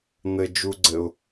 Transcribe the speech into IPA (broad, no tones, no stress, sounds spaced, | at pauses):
n̪ ɘ d͡ʒ u ɡ͡ǀ ɘ ʊ̯